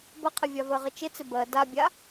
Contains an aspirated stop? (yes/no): yes